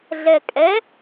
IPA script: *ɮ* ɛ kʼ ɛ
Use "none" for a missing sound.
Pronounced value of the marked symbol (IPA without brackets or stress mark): ɮ